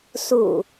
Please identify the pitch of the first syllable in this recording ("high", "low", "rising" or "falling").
low